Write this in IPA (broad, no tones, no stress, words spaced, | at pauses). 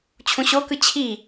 t͡ɕʰũɕokɯ t͡ɕʰi